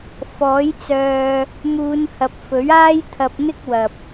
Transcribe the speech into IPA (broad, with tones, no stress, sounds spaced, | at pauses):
f ɔː˨˥ j t͡s œː˧ | m uː˨˧ n h ɐ˨ p̚ f ɵ˨˥ ɥ aː˥ j t̪ʰ ɐ˧ p̚ n̪ ɪ˥ k̚ w ɐ˨ p̚